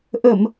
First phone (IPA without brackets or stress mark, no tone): ʔ